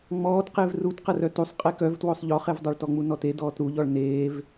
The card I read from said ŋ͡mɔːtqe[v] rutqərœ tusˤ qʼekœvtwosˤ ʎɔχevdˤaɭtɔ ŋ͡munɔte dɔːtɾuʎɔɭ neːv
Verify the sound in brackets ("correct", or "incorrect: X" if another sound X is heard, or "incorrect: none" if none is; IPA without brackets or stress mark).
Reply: correct